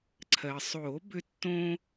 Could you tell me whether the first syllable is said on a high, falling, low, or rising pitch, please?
low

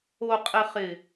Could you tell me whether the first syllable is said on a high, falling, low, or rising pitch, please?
low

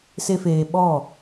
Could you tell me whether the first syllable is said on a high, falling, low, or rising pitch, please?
high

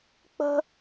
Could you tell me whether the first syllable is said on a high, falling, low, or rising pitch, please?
high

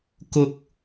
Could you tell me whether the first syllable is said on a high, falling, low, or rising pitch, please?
high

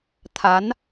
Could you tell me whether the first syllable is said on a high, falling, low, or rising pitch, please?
rising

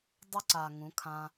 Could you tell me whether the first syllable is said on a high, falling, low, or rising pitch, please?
high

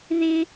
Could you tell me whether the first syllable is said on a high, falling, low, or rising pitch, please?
high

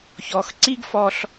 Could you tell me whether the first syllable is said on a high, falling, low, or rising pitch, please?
low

